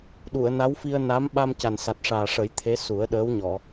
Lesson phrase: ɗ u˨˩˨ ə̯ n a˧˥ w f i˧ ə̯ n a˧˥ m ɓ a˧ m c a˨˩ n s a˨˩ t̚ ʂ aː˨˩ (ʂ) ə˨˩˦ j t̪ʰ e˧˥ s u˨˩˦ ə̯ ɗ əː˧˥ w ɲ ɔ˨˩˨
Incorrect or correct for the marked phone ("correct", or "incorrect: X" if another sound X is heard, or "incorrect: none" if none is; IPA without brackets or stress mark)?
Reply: correct